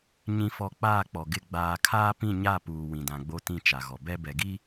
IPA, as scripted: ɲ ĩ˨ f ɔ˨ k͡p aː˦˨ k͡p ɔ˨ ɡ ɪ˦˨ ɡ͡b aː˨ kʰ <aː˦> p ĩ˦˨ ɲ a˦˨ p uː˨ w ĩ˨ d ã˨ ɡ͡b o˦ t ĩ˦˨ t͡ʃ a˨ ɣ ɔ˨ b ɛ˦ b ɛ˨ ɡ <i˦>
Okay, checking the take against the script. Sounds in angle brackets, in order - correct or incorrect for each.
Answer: correct, correct

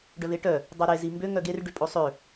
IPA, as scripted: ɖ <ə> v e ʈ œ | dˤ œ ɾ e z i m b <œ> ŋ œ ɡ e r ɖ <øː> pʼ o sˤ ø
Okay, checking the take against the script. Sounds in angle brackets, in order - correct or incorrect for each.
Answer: incorrect, incorrect, incorrect

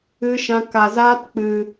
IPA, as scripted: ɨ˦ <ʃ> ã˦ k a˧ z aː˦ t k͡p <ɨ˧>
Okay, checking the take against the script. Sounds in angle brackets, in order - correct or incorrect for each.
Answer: correct, correct

